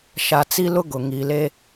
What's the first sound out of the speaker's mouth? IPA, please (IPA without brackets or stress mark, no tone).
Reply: ʃ